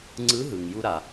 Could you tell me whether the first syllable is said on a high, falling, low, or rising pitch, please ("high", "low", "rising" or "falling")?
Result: rising